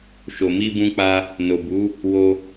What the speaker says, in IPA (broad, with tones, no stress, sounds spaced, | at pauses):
ʃ o˨ m i˧ b ũ˧ k͡p a˧ | n o˨ b u˨˦ | w o˧